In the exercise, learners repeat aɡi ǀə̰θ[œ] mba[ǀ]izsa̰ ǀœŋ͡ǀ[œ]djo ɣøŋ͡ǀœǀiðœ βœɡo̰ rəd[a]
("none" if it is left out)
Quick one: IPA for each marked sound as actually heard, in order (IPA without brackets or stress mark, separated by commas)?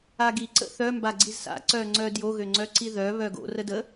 œ, ɡ͡ǀ, œ, ə